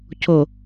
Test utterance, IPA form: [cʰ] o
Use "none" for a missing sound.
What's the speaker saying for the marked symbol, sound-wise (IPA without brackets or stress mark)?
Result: cʰ